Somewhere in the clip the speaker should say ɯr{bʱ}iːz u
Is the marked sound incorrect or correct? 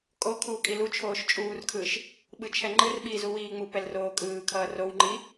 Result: incorrect